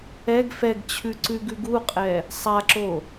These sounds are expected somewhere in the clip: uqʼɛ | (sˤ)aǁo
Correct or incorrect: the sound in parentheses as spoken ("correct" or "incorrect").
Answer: correct